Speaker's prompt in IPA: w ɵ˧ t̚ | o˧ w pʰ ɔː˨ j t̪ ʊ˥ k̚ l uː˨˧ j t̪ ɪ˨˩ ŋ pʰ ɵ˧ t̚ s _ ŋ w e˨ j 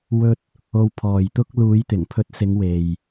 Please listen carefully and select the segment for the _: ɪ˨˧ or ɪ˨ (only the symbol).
ɪ˨˧